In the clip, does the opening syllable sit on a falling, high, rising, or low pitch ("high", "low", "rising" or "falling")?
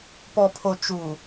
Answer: low